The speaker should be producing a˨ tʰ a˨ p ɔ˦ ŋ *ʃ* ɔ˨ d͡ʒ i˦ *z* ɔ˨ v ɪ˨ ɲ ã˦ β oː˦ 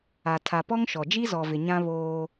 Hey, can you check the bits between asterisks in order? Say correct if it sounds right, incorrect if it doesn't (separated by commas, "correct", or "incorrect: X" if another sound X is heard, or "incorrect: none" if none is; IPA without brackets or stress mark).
correct, correct